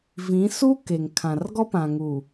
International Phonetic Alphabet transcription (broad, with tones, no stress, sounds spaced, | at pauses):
v ĩ˨˦ s u˦ k e˨ ŋ kʰ ã˨ r ɡ ɔ˦ p ã˨ ŋ uː˨